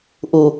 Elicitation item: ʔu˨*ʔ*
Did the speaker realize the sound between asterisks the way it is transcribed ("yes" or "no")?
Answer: no